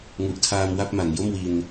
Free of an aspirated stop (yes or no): no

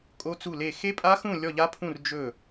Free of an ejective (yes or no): no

